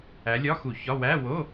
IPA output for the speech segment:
æ˨˦ lʲ ɒ˧˥˧ x u˧˩˧ ç ɒ˧˥˧ w æ˧˥˧ w o˧˥˧

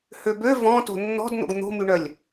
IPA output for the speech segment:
h ø b ø v ɔ̃ t o̤ nː ɔ̤ d n̪ o̰ ɡ n̪ o̤ m y ɳ œ lʲ

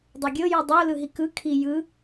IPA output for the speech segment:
dˤ ɤ ɡʲ ɤ j u dˤ o l ɯ ɦ i k ɯ kʰ i j ɯ

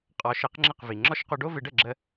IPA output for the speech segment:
qʼ ɔ˩˥ ʃ ɘ˩˥ q ŋ͡ǁ ə˥˩ q v i˩ ŋ͡ǁ ɔ˥˩ ʃ q o˧ ɖ o˥ v ɪ˩˥ ɖ ə˥˩ ɡ͡ǁ ə˧

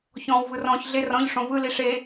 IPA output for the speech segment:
ç ɔ̃ː w v ɯ r ɔ̃ː ç ɮ e r ɔ̃ ʎ ʂ õ v ɯ l i ʂ e

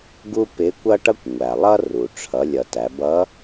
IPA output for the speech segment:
ɡ u˥ p ɪ˧˥ kʷ ʌ˥ ʈ ʌ˥ kʷ ŋʷ æ˩ lˠ ʌ˥ r u˩ ʈ͡ʂʰ ʌ˩˧ lʲ ʌ˩ t æ˩˧ b ʌ˧˥

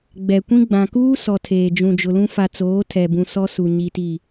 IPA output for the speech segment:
ɡ͡b ɛ˨ kʷ ĩ˦ ɡ͡b ã˨ k uː˦ s ɔ˨ tʰ eː˨ d͡ʒ ũ˨ d͡ʒ ʊ˨ l ũ˦ f a˨ t͡s oː˨˦ tʰ ɛ˨ b ũ˨ s ɔ˦ s u˨ ɲ i˨ t i˨

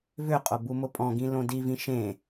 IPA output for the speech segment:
v ʏ qʼ o b u m ʊ pʼ ɔ̃ ɡ ĩ l õ d i v ĩ ʃ ẽ

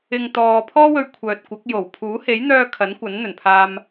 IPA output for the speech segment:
ɪ˨ ŋ t̪ ɔː˨ pʰ ɔː˥ w ɵ˧ ɥ kʷʰ œː˨ t̚ kʷ ɐ˨˥ k̚ j o˨˩ w pʰ uː˨˥ h e˨˥ j n̪ œː˧ kʰ ɐ˨˥ n kʷ ɐ˨˥ n n̪ ɵ˨˩ n pʰ aː˧ m

